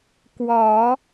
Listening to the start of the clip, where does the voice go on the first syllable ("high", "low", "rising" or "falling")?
low